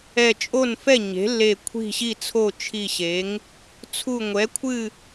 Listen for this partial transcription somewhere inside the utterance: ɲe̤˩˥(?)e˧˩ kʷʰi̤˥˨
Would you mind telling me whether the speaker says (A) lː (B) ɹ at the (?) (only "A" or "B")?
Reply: A